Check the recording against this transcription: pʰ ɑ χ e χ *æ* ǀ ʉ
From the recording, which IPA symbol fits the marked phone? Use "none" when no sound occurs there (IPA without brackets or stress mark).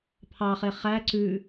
æ